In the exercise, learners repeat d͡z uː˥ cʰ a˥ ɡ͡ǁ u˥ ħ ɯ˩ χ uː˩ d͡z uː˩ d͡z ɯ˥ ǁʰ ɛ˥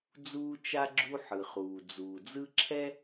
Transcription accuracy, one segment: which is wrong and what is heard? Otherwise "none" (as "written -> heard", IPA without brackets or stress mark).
cʰ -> t͡ʃ